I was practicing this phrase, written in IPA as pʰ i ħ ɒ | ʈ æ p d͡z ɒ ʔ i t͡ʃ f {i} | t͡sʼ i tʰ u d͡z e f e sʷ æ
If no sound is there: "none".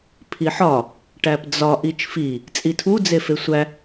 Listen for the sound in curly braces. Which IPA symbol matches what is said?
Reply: i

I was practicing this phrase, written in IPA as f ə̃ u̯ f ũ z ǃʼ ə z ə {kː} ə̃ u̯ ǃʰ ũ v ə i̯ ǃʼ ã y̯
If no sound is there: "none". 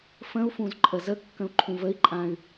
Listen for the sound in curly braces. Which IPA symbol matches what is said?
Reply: kː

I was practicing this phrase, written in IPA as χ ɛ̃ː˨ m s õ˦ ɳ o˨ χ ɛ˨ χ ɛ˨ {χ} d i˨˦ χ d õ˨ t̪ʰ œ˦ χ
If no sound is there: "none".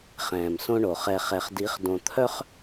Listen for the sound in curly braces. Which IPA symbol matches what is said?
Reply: χ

